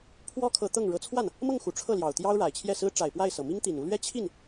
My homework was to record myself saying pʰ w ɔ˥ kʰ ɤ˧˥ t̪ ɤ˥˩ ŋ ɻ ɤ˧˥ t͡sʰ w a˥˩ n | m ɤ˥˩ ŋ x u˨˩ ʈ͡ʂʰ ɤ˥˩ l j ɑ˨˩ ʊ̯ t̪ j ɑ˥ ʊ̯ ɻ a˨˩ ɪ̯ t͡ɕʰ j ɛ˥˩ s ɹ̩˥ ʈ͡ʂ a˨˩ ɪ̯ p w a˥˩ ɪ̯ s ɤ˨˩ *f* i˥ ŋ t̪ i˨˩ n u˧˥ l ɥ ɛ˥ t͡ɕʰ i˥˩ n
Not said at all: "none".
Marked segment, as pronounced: m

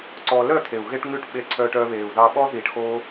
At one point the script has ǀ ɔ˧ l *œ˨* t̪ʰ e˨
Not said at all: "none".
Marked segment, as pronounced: œ˦˨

